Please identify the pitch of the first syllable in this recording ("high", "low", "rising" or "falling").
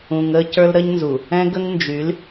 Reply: low